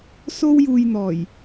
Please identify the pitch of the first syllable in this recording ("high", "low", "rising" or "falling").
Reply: high